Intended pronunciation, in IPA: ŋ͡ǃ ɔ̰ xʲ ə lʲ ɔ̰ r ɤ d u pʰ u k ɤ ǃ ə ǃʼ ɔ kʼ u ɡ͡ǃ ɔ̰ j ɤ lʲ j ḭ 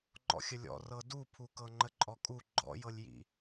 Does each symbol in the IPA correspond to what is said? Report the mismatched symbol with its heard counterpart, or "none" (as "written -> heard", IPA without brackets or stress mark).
ǃ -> ŋ͡ǃ